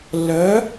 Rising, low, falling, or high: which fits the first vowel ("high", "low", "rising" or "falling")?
rising